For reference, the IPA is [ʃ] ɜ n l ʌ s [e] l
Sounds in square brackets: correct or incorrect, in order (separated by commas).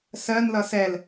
incorrect, incorrect